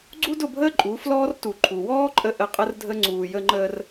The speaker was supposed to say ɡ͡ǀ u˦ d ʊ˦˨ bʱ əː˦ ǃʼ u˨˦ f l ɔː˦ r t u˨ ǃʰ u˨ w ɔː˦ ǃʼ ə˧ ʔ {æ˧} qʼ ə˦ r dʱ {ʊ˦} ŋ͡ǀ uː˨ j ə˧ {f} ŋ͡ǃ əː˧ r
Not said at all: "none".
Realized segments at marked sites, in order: ə˧, ə˦, none

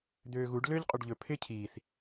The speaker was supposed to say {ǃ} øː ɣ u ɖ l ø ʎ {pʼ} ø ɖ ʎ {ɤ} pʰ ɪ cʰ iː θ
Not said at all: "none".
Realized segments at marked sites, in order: d̪, qʼ, ɵ

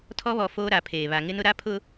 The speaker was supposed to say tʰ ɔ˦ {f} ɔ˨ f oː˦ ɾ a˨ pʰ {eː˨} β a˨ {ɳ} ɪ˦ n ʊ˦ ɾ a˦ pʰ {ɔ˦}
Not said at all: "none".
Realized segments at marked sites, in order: β, eː˨, ŋ, ʊ˦

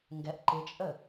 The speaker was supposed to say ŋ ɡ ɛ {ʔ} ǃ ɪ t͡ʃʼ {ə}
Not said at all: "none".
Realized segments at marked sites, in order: ʔ, ə

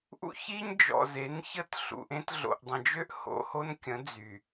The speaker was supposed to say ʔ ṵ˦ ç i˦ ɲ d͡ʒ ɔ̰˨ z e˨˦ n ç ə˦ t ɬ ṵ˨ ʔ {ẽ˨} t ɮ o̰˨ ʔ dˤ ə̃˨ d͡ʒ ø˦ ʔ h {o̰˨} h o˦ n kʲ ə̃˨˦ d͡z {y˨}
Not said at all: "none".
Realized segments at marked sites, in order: ẽ˦, o̰˨, y˨

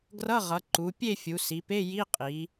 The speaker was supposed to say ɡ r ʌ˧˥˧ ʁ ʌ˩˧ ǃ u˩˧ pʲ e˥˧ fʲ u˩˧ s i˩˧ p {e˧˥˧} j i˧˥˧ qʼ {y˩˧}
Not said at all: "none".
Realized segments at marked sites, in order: e˧˥˧, i˩˧

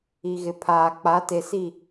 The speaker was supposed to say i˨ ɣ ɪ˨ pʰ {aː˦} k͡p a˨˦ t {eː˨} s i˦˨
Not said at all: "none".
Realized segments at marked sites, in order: aː˨, e˨

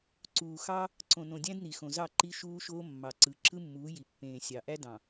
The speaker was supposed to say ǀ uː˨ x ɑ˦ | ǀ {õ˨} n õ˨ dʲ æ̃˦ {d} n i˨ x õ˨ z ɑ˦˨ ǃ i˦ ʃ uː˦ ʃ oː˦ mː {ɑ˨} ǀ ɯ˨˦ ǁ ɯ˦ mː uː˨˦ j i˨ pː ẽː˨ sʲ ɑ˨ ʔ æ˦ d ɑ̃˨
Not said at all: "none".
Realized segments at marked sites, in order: õ˨, d, ɑ˨

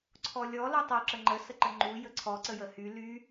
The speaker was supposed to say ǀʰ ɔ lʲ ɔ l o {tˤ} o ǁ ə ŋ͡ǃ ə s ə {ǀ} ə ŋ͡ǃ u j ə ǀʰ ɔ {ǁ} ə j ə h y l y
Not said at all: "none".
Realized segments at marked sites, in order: tˤ, ǃ, ǀ

